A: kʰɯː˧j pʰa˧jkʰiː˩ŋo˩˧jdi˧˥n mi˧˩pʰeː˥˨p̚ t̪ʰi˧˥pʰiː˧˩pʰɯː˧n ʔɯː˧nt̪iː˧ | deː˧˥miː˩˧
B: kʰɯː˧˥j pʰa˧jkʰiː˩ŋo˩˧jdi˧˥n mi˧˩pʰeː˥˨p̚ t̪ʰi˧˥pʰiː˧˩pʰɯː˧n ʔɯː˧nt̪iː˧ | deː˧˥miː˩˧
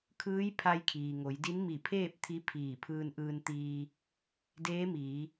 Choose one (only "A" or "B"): B